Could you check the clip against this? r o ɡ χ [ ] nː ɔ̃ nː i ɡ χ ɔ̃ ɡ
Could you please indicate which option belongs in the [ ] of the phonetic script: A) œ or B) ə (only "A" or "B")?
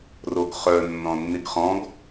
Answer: A